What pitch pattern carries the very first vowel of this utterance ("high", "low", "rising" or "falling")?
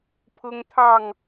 high